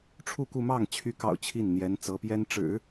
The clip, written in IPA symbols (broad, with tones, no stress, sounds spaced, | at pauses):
ʈ͡ʂʰ u˥˧ k u˥˧ m ɑ˥˩ ŋ t͡ɕʰ y˧˥ k ɑ̰˨˩ ʊ̯ t͡ɕʰ i˥˩ n n̪ j ɛ˧˥ n t͡s ɤ˧˥ p j ɛ˥ n ʈ͡ʂ ɻ̩˨˩˦